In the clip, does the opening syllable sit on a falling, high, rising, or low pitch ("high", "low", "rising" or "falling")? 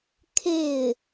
falling